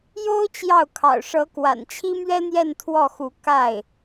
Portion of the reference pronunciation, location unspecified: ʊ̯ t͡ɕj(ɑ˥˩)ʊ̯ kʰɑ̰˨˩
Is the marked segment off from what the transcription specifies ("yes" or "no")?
no